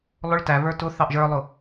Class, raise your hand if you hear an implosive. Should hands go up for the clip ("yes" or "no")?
no